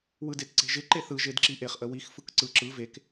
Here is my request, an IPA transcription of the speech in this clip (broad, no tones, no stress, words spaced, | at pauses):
wɯdetǀe̤ʒɪ ǃeθɯ ʒedǁiʔeχ ʔəwix fɯkǀɯ ǁɯ vek